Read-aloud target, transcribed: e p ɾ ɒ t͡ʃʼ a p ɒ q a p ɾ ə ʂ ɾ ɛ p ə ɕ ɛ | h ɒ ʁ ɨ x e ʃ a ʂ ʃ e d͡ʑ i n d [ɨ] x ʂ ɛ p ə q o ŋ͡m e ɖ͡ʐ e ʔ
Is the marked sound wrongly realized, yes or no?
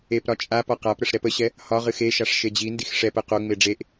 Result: yes